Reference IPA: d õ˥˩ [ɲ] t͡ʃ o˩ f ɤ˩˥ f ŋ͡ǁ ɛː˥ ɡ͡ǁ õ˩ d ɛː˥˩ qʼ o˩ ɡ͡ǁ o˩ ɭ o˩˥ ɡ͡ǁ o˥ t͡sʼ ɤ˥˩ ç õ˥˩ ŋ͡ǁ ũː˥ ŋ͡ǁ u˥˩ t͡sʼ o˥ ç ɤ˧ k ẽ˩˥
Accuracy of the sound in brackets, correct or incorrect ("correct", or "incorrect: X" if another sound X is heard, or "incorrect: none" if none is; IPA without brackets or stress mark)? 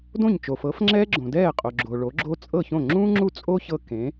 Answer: correct